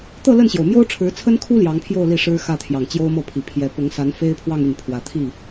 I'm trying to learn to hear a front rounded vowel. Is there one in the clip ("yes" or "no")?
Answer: yes